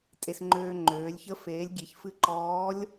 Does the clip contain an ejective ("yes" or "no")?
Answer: yes